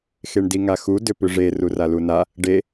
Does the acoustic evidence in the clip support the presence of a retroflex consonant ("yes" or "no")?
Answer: yes